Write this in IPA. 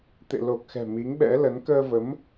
t̪ḛ˧˨lo˨˩k̚xɛ̤˨˩ mi˨˦ŋɓɛ̰˧˥lə˨˦n kəː˧və˨˦m

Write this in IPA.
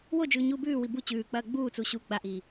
wod͡ʒʉːɲuː bʉːwi bu t͡ɕʉːk͡pɐː ɡ͡buːt͡su ɕu ɡ͡baʔiː

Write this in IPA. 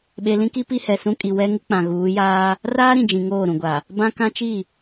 ɓe˨lĩ˦ki˦ pi˦hɛ˨sũ˦kʼi˨ wɛ˦ ŋɪ˦k͡pã˨ɣuː˨˦jaː˦ | raː˦ɾĩ˨d͡ʒĩ˨ ŋoː˦˨ɾũ˨ɡʷa˨ | bã˦kã˦t͡ʃi˦˨

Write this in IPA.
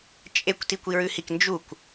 t͡ʃʼekʷ tikʷiɹʉhik nd͡ʒukʷ

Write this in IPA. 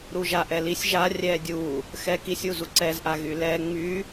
ɾuʒaʔɛlisʲ ʒa rʲɛdʲu | xɛ kisʲu zuǀɛzʔa ɣylɛ ŋ͡my

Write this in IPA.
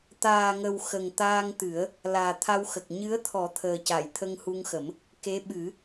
t̪aː˨˩ŋə˨˩w xə˨˩ŋ t̪aː˧ŋt̪ɨ˨˩˦ə̯ | laː˨˩t̪ʰa˧wxə˨˩k̚ ɲɨ˧˥ə̯t̪ʰɔ˨˩˦ t̪ʰəː˨˩ca˨˩˨j t̪ʰə˧ŋhu˧ŋxə˨˩˦m | ke˧˥ɓɨ˨˩˦

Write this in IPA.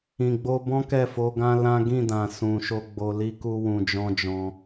ĩ˨ɡ͡bo˧bɔ̃˦ kɛ˦˨fo˧ɡã˦ lã˦ ɡĩ˦˨dã˨sũ˨ʃo˧ ɡ͡bo˧li˦ku˦ wũ˧d͡ʒɔ̃˦d͡ʒɔ̃˧

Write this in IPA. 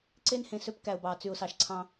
ǀe˦nhẽ˨sø˦p kæ˨ʊ̯bɑ˨ t͡sy˨ʊ̯sɑ˨ʃǀʰɑ̃˦

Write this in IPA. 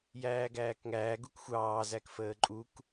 jæːɡæːkŋæː ɡukxʷɑː zækfəːǃʼuk

